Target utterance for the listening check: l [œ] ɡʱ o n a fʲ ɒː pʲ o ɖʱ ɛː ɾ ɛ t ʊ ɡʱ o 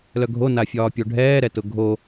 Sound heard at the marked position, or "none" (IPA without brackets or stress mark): œ